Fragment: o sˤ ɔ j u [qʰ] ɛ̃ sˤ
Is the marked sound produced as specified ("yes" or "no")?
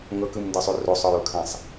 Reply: no